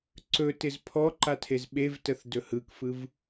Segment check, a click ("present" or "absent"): present